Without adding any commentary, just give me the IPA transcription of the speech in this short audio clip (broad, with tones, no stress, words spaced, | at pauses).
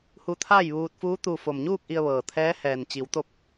hu˧t̪ʰaː˥˨jʋuː˧t̚fuː˧˥ t̪u˧ fo˩mɲuː˥˨k̚ ʔi˧ə̯ʋɤː˩t̪ʰɛː˧˥ hɛː˩nt͡ɕi˩˧wt̪o˧˥p̚